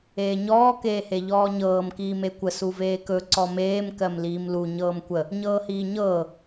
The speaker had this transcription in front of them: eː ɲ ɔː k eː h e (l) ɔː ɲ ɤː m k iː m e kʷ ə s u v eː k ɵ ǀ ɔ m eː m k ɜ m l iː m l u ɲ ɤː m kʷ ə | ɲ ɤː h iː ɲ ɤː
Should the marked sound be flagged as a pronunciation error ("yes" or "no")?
yes